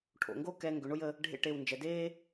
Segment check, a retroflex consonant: present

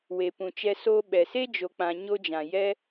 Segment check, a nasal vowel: present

